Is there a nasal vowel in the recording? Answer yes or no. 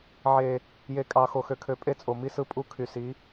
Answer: no